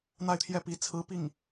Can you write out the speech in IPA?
n̪ a˥˧ ɪ̯ t̪ʰ j ɛ˥˩ p i˧˥ t͡sʰ ɹ̩˧˥ p i˥˩ ŋ

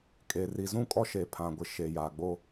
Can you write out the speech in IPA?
kʼ e˨ r i˨ z ũ˦˨ kʼ ɔ˦ ʃ eː˨ pʰ ã˨ ɡʷ ɪ˨˦ ʃ e˨ j aː˨ ɡ͡b o˦

